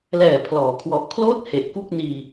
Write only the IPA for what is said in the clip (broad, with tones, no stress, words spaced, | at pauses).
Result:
lɛː˨˩pʰlɔː˩˦kʰwɔ˨˩ʔkʰloː˥˩t̚ he˨˩ʔku˥˩k̚niː˧